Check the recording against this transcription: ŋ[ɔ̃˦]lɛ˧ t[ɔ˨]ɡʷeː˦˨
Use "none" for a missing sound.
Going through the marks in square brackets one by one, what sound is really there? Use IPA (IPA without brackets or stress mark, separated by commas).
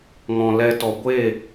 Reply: ɔ̃˨, ɔ˨